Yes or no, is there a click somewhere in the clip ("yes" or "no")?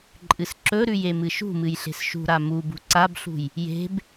yes